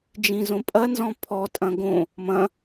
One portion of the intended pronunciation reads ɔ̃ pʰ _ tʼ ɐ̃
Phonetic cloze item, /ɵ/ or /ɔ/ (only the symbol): ɔ